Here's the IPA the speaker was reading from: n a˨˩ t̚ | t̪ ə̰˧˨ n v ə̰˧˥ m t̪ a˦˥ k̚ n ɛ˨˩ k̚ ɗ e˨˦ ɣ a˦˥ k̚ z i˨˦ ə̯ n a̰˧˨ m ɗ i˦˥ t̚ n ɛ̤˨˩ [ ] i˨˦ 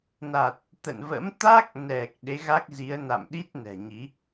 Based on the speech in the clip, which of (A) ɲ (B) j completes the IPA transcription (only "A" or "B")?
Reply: A